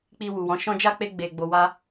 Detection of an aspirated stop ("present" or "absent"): absent